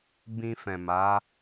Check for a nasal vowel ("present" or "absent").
present